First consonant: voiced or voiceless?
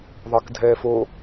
voiced